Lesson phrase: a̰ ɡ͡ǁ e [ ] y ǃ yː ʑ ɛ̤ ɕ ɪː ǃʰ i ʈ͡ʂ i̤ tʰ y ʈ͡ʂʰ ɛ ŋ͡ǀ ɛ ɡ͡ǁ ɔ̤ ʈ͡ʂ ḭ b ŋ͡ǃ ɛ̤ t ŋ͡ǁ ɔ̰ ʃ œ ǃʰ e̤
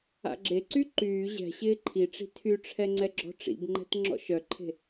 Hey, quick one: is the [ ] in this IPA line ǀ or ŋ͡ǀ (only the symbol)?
ǀ